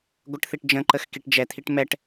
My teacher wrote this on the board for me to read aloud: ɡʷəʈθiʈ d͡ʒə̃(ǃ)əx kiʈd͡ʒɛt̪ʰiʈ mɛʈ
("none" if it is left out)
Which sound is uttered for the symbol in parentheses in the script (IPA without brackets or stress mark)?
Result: ǃ